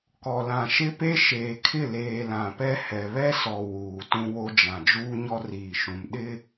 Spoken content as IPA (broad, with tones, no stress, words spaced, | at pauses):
kɔ˨lã˨ʃɪ˦pe˦ ʃeː˨kʰɪ˦˨leː˨ lã˨pɛ˦ hɛ˨βɛ˦sɔ˨ wuː˨ tũ˦wo˦d͡ʒã˨ d͡ʒuː˦ɲɔ˦riː˨ʃũ˨m ɗɪ˦